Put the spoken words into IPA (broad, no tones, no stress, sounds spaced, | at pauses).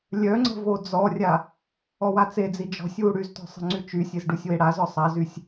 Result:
lʲ œ ŋ͡ǀ ə̤ v o d͡z ɔ rʲ a | ɔ w a t͡s e d͡z i d͡ʒ ɔ̤ sʲ w u ɽ y z t ɔ̤ sˤ ə̤ ŋ͡ǀ y t͡ʃ y sʲ e z ɖ u sʲ w e ɽ a z ɔ sˤ a z y sʲ